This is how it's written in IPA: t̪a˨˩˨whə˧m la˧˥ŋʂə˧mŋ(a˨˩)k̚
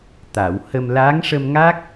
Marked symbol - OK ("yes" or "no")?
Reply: no